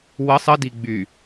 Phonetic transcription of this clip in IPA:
w ə sˤ ə d i ɡ͡b y

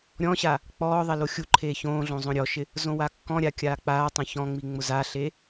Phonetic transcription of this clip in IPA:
ɾʲ ɔ̃ ɕ a | k͡p ɔː ðˤ ɛ l o xʲ u ǃʰ eː ç õː ɮ õ zˤ õ ɾʲ ɔ ʃ ɪ | z õ w a kː ɔ̃ ɾʲ a kʲ aː k͡p aː tˤ õ ç ɔ̃ ŋ͡m i ŋ͡m ʊ z a ɬ e

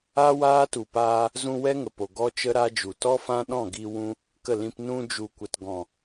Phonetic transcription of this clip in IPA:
a˦ w aː˦ t u˨ p aː˧ | z ũ˧ w ɛ˦ ŋ ə˨ p o˨ ɡ ɔ˦ t͡ʃ ə˦ ɾ a˦ d͡ʒ u˨ t ɔ˦ f ã˦ ɗ ɔ̃˦˨ ɡ i˧ w ũ˧ | k ə˦˨ l ĩ˧ p n ũ˧ d͡ʒ u˨ kʷ ə˨ t ɡ ɔ̃˨

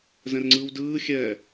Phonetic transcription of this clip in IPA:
z ɛ̃ r ŋ͡ǀ ɯː w d ɯː xʲ ɛː

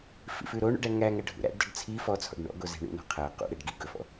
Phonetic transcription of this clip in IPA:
f ḭ f ʉ ɾ o ɳ ṵ ɖ æ ŋ æ ŋ æ ɖʱ ṵ ɾ æ̰ ɖ d ɔ ɖ t͡sʰ i f ɔ t͡sʰ ɔ̰ ɖ ɳ ɔ̰ ɡ o z e̤ ɳ ṵ n ɔ̤ qʰ æ q ṵ ɾ ɛ ɖ ɡ i ɡ ɵ f ɔ̰

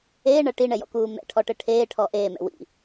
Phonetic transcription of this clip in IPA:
eː ɳ ɐ ʈ i ɳ ɛ j ɔ̰ k uː m ɛ̰ ʈʰ ɔ ʈ ɘ ʈʰ eː ʈʰ ɔ ʔ eː m ɛ̰ w ḭ

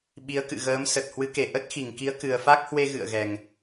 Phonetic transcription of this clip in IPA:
ɓ i˨˦ ə̯ k ɨ̰˧˨ ɣ əː˨˦ m s ə˨˩ t̚ h w ɨ˨˦ k e˧˩ ʔ ə˦˥ t̚ x i˧˩ ŋ k i˨˦ ə̯ k ɨ˨˩ ə̯ f a˦˥ k̚ h w e˧ ɣ ɨ̰˧˨ ə̯ ɣ ɛ˨˩ ŋ

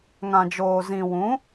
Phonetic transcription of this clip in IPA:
ŋ ã˨ d͡ʒ oː˨ z ĩ˨ w ũ˨˦

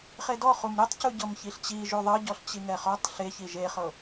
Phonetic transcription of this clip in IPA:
χ e d ɔ χ u m ɾ e tˤ c u ɟ ɤ m ç i ɬ t͡ɕ i ʒ u ðˤ ɤ ɟ ɔ ɬ t͡ɕ i ŋ ɛ χ ɔ tˤ ɬ e ç i ʒ e χ ɤ

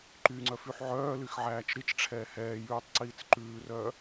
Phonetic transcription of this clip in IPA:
ǃ y ŋ͡ǀ œ f y ħ ʕ œː l y x ʕ æː t͡ʃ ɾ i t͡ʃ ʈ͡ʂʰ ɛː h ɛː j ʉː tˤ ǀ iː t͡s ǃ ʉː r œː

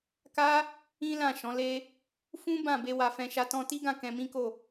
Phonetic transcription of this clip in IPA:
k a˦ | ĩ˦ l ã˦˨ ʃ ɔ̃˨˦ l e˦ | f ũ˦ b ã˦˨ b e˧ w a˧ f ɛ̃˧ ʃ a˦ t ɔ̃˧ t i˦ ɡ ã˦˨ k ɛ̃˧ m ĩ˦ k o˦˨

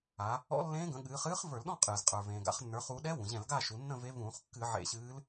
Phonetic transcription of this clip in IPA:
a˩˧ | ɔ̰˧˥ lː ẽː˧˥ ɡ ə̃˩˧ ɠ ɨː˩˧ χ ɨː˧˥ χ v ə˞˧˩˧ l ɗ ɔ̃˥˨ qʼ ɨː˩ z qʼ ə˞˩ v ẽː˩ ɡ a̰˧˩˧ χ nː ə˞˩˧ χ u˩˧ ɗ ɛ˧˥ w ũ˩ ʑ ɛ̃˧˩˧ l ɡ a˥˨ ʃ u˩˧ nː ə̃˥˨ v e˧˥ v ũː˧˩˧ χ kː ɨ˧˩˧ ʕ ḛ˧˩˧ ɕ ɨː˧˥ l

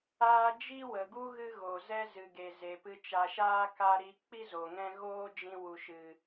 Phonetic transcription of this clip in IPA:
aː˦ d͡ʒ i˦ w ə˨ ɡ u˦ ɣ ɨ˦ ɣ o˨ z ɛ˦ z ɨ˨ ɡ e˨ z e˨ p ɨ˧ t͡ʃ a˨ ʃ aː˦ k a˦ ɾ i˧ k͡p i˦ z o˨ ŋ ɛ̃˦ ɣ oː˦ d͡ʒ ĩ˧ w u˨ ʃ ɨ˨

